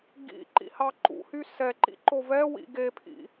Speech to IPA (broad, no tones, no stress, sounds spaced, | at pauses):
ɡ ḭ ǃ ḭ h ɑ ǃ ṵ h y s ɛ ǃ ḭ ǃ o v ɛ w ḭ ɡ e pʰ ḭ